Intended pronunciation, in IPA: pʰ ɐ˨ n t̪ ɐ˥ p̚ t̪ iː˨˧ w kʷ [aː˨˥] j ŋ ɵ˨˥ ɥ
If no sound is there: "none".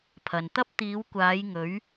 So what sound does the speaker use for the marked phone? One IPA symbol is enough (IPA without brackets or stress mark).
aː˨˧